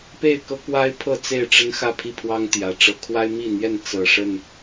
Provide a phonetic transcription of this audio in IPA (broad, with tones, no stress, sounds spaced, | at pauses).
p e˥˨ ɪ̯ k ɤ˦ k w a˦ ɪ̯ pʰ ɤ˥˨ t͡s e˥˨ ɪ̯ ʈ͡ʂ ə˦ n x ä˥˨ pʰ i˥˨ pʰ w ɑ˦ ŋ t̪ j ä˨˩ ʈ͡ʂ ɤ˨˦ kʰ w a˦ ɪ̯ m i˥˨ n̪ j ɛ˥˨ n t͡s ɤ˨˩ ʂ ə˥˨ n